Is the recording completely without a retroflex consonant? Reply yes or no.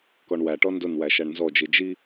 no